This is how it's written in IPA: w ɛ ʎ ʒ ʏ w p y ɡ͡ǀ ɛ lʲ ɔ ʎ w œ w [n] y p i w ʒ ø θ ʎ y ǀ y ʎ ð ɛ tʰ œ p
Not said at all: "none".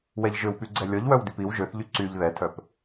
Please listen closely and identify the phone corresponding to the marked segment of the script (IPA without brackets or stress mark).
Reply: d